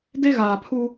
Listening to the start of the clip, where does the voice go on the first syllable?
high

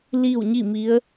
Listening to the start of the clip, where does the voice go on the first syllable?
falling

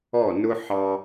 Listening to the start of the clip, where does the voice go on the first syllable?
falling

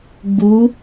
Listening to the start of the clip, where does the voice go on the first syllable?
rising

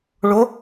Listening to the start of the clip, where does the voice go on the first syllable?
rising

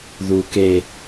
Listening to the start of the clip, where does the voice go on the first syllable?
low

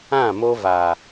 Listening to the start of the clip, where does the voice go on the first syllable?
falling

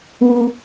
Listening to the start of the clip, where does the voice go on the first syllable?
high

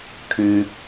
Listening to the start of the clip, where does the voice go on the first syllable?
low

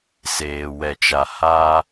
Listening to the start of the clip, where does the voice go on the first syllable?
low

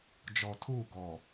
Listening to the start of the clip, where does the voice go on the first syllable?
low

